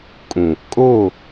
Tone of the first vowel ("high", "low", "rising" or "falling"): low